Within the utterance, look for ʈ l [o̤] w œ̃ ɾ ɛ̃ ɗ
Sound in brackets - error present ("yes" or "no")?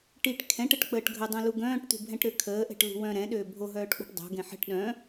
yes